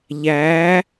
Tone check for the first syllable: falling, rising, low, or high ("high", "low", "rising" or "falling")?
rising